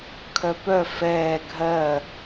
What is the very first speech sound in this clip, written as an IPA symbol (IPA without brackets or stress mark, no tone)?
kʰ